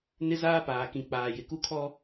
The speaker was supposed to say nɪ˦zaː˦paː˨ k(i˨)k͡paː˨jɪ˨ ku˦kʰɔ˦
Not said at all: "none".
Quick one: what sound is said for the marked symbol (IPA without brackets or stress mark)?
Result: ĩ˨